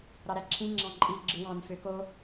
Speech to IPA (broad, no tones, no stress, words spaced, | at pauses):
ɾɑɾæǁʰĩ ŋ͡ǁɑ̃ǃʼi ɡ͡ǁɯwɑ̃n føko